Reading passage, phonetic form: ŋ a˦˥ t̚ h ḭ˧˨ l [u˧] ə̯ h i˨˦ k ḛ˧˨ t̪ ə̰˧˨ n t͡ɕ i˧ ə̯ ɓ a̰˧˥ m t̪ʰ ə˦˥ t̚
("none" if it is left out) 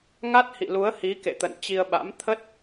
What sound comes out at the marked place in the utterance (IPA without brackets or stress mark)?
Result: u˨˦